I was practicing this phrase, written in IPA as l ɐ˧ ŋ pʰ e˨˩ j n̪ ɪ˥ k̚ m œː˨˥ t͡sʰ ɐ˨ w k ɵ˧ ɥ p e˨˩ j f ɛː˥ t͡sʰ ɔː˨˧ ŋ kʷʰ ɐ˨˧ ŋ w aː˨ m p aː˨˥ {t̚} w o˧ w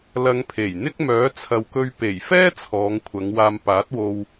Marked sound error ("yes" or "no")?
no